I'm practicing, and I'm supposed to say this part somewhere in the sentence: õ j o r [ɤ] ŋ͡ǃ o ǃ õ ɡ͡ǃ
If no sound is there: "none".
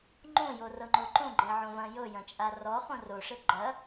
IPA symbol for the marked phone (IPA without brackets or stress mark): ɤ